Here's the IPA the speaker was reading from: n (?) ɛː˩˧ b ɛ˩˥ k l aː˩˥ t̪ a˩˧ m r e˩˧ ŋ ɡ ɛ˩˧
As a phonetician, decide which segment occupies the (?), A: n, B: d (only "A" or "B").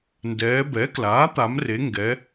B